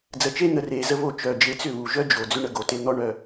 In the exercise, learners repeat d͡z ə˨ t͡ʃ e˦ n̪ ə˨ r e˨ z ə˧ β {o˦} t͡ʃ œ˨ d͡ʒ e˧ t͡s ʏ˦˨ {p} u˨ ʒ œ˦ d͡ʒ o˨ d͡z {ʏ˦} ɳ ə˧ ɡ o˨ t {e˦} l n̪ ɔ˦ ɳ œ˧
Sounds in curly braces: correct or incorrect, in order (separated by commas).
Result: incorrect, incorrect, correct, incorrect